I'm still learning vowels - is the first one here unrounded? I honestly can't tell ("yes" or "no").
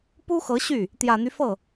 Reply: no